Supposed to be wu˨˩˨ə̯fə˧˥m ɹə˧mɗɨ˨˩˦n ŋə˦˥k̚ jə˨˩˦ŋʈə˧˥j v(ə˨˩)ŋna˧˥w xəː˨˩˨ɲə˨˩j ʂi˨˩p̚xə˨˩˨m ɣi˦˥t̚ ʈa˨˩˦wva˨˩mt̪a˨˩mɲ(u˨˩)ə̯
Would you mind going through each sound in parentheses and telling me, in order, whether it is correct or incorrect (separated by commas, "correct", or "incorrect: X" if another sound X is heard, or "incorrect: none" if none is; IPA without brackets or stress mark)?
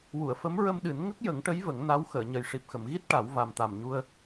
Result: incorrect: ə˨˩˦, incorrect: u˧